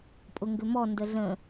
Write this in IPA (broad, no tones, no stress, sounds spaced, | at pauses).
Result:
pʼ ʊ ŋ ɡ ʏ m ɔ n d ə ɮ ə̃